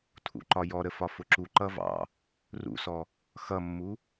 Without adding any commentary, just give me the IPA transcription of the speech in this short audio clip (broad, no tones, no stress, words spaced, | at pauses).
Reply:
tʰṵǃɒjɔɾə fɒfʊǁuǃʌ vɑ̰ | rṵsɔ | xʌmːu